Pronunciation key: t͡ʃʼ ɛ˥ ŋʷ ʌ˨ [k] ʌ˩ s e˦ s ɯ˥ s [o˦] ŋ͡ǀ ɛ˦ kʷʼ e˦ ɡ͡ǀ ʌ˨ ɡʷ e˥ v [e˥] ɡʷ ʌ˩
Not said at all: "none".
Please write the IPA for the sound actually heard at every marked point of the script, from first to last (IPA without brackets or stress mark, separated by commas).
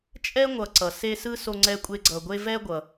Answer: ǀ, o˦, ɛ˥